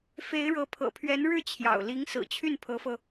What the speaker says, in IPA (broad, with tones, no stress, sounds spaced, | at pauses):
f e˧˥ ɪ̯ ɻ ɤ˧˥ pʰ ɤ̰˨˩ pʰ ɥ ɛ˧˥ n ɻ ɻ̩˥˩ t͡ɕʰ j ɑ̰˨˩ ʊ̯ l i˧˥ ŋ s ɹ̩˨˩ t͡ɕʰ y˥˩ n pʰ ɤ˧˥ f ɤ˧